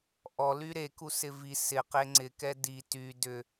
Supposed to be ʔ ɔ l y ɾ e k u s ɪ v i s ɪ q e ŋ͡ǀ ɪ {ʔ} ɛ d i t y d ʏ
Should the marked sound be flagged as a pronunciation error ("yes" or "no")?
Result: yes